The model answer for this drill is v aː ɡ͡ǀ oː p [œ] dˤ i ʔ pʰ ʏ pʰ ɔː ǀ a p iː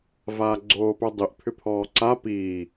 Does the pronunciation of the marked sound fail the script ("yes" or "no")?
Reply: no